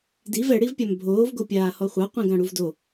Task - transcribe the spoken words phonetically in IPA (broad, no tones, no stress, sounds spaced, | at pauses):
d i v ɛ ɽ i v pʲ a m bʱ oː v ɡ o pʲ aː h ɔ χʷ a qʷ ĩ ɡ ã ɽ u v d o